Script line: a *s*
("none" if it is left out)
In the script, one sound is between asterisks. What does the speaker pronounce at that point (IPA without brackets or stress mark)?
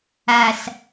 s